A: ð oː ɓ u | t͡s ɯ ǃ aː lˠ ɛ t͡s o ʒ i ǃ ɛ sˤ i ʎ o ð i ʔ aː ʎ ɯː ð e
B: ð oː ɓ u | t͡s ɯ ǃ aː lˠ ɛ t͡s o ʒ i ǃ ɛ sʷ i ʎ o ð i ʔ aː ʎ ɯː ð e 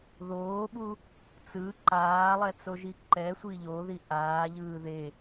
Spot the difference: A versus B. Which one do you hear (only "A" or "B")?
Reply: B